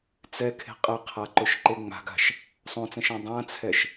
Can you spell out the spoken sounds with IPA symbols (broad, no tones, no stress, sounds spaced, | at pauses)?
t͡s ɛ kʰ e̤ qʼ ə qʰ a ǃ ʊ ʃ ǃ e ŋ͡m a̤ ɡ a̤ ʃ | sˤ õ t͡s ɛ̃ ʃ ã dˤ ã t͡sʰ ɛ ʃ